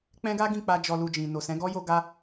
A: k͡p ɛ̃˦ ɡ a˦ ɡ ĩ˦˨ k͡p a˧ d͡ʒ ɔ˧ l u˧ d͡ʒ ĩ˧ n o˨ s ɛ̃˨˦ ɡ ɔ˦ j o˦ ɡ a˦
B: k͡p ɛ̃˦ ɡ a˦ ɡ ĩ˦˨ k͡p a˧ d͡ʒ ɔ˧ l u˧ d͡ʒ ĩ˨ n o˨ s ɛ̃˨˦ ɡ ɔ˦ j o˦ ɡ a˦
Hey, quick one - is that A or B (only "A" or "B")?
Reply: B